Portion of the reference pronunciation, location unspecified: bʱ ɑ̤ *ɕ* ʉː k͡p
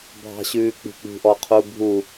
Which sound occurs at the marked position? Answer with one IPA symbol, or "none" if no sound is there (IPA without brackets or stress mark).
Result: ɕ